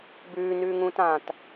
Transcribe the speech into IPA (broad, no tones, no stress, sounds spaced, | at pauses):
b ʉː n ʉː ŋ ũː t ãː t